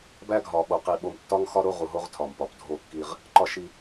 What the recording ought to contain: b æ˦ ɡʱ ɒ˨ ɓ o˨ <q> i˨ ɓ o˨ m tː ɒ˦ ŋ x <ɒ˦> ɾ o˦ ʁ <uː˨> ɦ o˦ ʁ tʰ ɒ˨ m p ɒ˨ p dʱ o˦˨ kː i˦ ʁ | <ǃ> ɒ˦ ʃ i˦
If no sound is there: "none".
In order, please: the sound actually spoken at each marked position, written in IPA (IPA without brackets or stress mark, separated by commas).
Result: q, ɒ˦, u˨, ǃ